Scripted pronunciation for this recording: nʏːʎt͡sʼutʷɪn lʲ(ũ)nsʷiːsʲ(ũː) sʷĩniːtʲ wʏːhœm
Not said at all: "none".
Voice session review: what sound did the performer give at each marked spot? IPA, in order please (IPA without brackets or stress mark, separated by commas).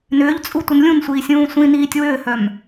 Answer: ũ, ũː